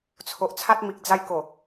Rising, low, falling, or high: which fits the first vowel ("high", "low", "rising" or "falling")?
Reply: low